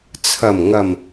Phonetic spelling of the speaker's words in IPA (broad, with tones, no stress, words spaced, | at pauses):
t͡sʰɐ˨˩mŋɐ˨˩m